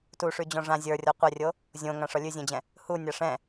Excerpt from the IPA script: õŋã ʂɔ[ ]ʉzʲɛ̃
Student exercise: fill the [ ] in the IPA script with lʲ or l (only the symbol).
lʲ